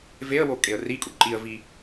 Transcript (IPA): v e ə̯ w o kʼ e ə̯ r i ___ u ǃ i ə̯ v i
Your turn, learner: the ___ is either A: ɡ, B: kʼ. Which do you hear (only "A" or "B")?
B